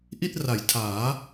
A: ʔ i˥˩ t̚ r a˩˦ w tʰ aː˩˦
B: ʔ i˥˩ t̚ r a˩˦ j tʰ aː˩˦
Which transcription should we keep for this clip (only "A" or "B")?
B